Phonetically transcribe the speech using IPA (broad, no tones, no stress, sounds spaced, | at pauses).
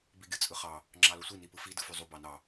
b i ɡʲ ɯ t͡sʼ ɯ χ ɑ | ŋ͡ǁ ɑ l o sʷ i n i p ɯ f i d ɯ f y zˤ u b ɑ n ɑ